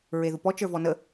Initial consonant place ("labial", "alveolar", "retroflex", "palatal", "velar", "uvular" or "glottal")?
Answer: alveolar